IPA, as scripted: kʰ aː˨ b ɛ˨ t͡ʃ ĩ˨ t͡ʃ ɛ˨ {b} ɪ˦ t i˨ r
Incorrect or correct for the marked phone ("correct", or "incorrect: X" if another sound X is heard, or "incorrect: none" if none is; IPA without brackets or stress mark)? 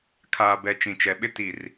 incorrect: ɓ